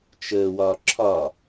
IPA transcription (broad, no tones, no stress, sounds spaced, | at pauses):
t͡ʃ əː w ɒː ǁʰ ɒ